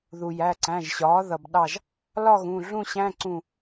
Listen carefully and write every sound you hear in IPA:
ð u˩ j æ˩˧˩ ǀ æ̃˩˧˩ ʒ ɕ ɒː˩˥ ð ʌ˩ b ɗ ɑ˧˩ ʒ | l ɒ˥˧ ɣ ũ˩˧˩ ɮ ũ˥˧ ɕ æ̃˧˥˧ ǀ ũ˧˩

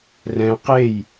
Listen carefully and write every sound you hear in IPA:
r ɛ̃ q e j

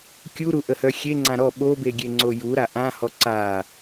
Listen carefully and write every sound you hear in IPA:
kʲ u ɾ u ʔ ə h œ xʲ e ŋ͡ǀ ã ɾ ɔ ɓ o b e ɡʲ e ŋ͡ǀ o j u ɾ a ʔ ã h ɔ ǀ a

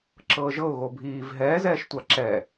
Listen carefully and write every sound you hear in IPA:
ǁ ɤː ʒ ɤ ʊ̯ ɣ o bʱ iː v ɦ ɛː z ɛː ʃ tʷ a ǁ ɛ

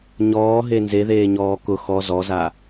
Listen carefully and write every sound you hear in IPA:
ɲ ɔː ɦ e n z e ð eː ɲ ɔː k ʊ x ɔ z ɔ z a

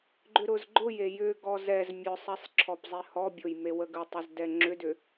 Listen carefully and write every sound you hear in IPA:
ɡ͡ǃ ʏ ɾ ʊ z ɡ͡ǃ ʊ j e j ʏ ɡ ɔ z ɛ z mʲ ʊ sˤ ɛ sˤ ǁʰ ɔ p zˤ e h ɔ bʲ ʊ j m e w ə ɡ ə tˤ ʊ z d ɛ ŋ͡ǁ ʏ d ʏ

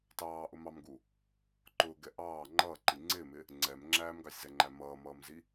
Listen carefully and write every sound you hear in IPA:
t ɑː ʔ ʊ m ɑ m ɡ u | ǃ ʊː ɡ ɛ ʔ ɑː ŋ͡ǃ ʌː ǃ i ŋ͡ǀ ɪː m ɪ | ŋ͡ǀ ɛ m ŋ͡ǁ æː m ɡ ɑ sʲ z ɛ ŋ͡ǃ æ m ʌː m ʌː m z i

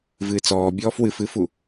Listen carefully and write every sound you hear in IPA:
v ɨː t͡s ɔː bʲ ɔː f w ɨ f ɨ f u

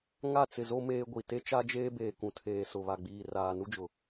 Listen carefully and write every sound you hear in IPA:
ŋ a˦˨ t͡s ɪ˨ z o˦ m eː˦ ɡʷ i˨ t e˦ t͡ʃ a˦ d͡ʒ eː˦ b eː˨ k ũ˨ tʰ eː˨ s ʊ˨ β a˨ ɡ͡b iː˨ r aː˨ n u˦ d͡ʒ ʊ˨

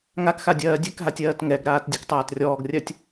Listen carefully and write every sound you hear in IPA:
ŋ a k x a dʲ ɜː dʲ ɛ k ɦ a tʲ ɜː t ŋ ɛ ɡ ɾ aː t dʲ ɛ k tˤ aː t rʲ ɔː ɡ rʲ ɜ tʲ

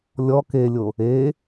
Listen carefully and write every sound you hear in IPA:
lʲ ɔ k e lʲ o | e

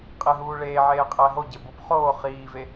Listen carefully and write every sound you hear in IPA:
qʼ e ɦ uː ɭ eː ʕ eː qʼ æ ɦ o ɟ e b o p χ oː χ iː v e

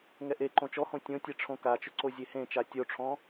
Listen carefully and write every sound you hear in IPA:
ŋ ɛ ʔ e ǃ õ t͡ʃ ɔ h õ tʲ õ tʲ ɛ ʈ͡ʂʰ õ k a t͡ʃ ʊ ǀ o zʲ e h ẽ t͡ʃ a tʲ o ʈ͡ʂʰ ɔ̃

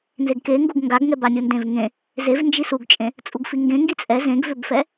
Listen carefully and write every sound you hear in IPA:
n z e ɡ k e ŋ ɡ u ɡ ŋ ɡ a ɡ ŋ ɛ b a nʲ u n d ẽ v ŋ ẽ | z e v n d͡ʒ i s u ɡ t͡ʃʼ ẽ | t͡sʼ u ɡ f i ŋ ɡ ẽ ŋ ɡ i t͡sʼ ɛ z ẽ ɡ v ʏ b f ɛ

